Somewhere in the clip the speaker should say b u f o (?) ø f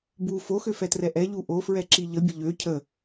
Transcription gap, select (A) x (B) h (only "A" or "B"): A